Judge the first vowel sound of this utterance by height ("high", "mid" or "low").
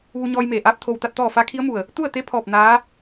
high